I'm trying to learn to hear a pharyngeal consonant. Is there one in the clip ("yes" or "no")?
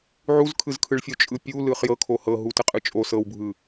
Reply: yes